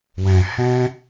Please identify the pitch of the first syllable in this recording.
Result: low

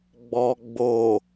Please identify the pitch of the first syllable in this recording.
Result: low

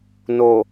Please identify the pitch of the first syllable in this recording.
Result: low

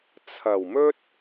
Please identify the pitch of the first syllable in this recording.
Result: low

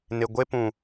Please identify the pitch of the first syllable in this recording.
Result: low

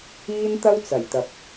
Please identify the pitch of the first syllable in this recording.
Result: high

